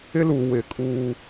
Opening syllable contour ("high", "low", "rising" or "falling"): high